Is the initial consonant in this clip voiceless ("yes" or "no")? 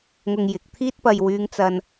no